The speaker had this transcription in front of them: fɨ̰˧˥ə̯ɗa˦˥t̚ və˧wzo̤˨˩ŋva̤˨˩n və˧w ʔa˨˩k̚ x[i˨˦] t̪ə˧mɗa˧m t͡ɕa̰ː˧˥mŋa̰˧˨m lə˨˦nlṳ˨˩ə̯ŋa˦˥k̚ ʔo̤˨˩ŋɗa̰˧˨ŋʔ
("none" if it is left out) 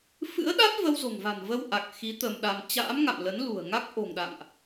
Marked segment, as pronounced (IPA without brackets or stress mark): i˨˦